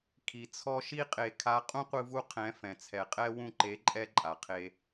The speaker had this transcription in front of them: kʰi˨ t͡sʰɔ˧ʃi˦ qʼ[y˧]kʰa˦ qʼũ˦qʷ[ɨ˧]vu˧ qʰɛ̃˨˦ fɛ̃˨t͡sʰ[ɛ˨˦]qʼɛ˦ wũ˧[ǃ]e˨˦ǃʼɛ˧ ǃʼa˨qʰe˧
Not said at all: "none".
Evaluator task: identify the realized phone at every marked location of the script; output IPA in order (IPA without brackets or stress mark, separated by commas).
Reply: e˧, ɨ˧, ɛ˨, ǃ